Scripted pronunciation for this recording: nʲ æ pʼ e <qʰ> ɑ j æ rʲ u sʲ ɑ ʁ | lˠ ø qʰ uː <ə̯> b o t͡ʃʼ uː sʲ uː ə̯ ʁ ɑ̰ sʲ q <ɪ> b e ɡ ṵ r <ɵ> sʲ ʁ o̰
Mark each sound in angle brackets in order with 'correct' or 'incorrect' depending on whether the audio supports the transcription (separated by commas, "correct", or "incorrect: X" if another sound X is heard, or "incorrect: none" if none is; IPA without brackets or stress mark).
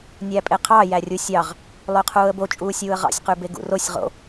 correct, correct, incorrect: y, incorrect: o